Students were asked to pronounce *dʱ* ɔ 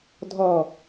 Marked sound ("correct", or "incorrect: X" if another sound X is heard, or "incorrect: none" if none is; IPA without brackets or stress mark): correct